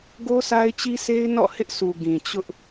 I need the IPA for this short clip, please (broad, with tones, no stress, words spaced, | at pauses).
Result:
ɡo˦sʰa˦ɪ̯t͡ɕi˦sʰe˦ɪ̯ nɔ̰˦˨hɪ˦ʔsu˨ ɡĩ˨t͡ɕʊ˦ʔ